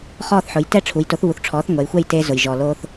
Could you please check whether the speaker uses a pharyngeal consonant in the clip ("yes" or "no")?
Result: yes